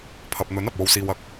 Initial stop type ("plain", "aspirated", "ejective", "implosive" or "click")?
aspirated